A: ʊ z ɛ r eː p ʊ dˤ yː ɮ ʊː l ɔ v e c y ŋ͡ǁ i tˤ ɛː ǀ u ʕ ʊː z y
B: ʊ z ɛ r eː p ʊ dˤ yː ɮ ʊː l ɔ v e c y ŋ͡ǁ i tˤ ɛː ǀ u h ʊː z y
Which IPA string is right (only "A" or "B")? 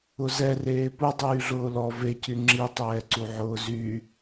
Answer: A